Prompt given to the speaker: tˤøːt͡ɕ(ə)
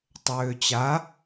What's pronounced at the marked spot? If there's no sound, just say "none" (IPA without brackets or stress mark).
a